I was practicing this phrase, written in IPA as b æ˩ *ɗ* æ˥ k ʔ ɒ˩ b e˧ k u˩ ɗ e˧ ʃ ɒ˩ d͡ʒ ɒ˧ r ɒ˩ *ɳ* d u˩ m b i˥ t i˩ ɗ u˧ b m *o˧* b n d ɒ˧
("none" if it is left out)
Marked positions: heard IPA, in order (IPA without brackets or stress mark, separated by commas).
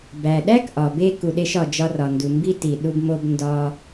ɗ, n, o˧